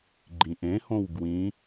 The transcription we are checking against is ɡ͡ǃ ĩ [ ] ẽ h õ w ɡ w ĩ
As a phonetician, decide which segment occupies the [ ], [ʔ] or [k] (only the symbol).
ʔ